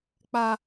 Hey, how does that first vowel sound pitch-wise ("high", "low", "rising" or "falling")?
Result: high